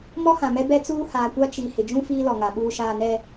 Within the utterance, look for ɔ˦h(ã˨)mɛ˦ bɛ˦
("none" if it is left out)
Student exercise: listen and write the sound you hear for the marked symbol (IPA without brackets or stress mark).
ã˨